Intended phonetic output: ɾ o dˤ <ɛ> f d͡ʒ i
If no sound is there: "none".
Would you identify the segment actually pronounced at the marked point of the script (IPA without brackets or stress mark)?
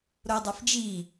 ɛ